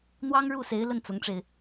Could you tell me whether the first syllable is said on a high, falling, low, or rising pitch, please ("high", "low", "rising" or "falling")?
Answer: high